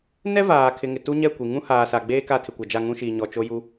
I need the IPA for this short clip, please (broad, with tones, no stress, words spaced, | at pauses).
nɛ˦ vaː˨ kʰɪ˨ŋɪ˨ tu˦ɲɛ˦˨kʷi˨ ŋũ˦ haː˨sa˨ɡ͡beː˦ ka˦˨tʰɪ˨kʷa˨ d͡ʒa˦˨ŋũ˦ʃiː˨ ɲɔ˨ t͡ʃo˦ju˦